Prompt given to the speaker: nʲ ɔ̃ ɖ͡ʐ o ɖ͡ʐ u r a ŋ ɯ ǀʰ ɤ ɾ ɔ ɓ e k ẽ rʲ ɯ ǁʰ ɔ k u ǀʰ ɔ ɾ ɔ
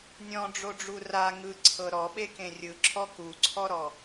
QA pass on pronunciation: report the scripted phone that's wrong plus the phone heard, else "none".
none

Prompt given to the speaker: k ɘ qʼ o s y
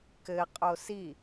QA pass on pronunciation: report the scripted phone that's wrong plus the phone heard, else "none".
y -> i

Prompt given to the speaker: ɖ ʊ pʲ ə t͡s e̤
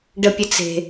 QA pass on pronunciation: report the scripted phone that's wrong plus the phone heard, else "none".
ʊ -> ə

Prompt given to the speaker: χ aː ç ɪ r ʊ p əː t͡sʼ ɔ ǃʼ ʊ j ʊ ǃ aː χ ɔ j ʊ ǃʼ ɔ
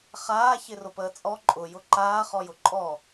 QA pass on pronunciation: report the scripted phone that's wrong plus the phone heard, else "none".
none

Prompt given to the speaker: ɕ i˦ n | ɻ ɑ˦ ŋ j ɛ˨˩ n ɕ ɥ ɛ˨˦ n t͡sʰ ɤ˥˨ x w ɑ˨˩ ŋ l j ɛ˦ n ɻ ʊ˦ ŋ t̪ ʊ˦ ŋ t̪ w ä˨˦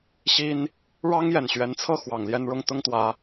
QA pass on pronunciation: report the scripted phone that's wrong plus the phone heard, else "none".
none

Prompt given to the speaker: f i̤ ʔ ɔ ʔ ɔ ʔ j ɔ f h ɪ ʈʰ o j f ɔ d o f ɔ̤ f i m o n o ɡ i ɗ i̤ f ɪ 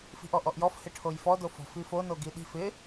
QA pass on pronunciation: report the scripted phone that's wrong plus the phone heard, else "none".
m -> f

